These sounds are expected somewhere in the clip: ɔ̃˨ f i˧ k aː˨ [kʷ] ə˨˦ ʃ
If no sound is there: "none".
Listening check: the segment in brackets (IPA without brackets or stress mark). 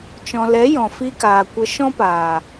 kʷ